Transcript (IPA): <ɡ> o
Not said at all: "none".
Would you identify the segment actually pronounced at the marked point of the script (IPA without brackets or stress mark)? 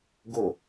ɡ